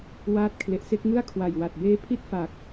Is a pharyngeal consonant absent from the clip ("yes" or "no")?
yes